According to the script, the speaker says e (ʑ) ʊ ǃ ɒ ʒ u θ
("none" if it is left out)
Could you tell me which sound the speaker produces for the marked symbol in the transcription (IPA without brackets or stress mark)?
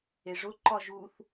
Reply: ʐ